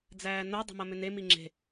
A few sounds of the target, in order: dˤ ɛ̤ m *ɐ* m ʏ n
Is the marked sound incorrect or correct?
correct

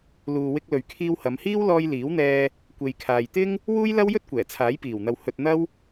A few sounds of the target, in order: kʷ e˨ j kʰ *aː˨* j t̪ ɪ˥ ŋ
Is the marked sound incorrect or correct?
correct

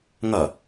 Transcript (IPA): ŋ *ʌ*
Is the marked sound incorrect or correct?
correct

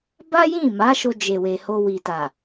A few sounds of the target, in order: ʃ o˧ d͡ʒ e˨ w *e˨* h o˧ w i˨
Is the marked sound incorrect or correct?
correct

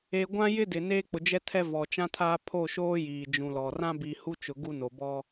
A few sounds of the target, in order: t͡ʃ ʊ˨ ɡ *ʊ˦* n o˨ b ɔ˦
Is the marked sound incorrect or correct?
incorrect: u˦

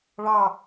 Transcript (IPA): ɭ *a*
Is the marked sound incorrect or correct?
incorrect: ɑ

